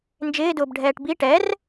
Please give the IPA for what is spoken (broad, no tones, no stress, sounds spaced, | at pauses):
n d͡ʒ ɪː d ʊː b ɖʱ ɛː ʈ b i ʈ ɛ r